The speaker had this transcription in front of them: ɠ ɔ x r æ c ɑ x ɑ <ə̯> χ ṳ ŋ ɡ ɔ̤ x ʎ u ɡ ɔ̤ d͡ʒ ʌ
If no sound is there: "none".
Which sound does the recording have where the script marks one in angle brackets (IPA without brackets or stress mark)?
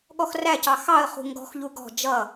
ə̯